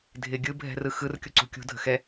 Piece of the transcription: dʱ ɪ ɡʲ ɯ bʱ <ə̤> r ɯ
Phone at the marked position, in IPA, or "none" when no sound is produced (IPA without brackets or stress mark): ɛ̤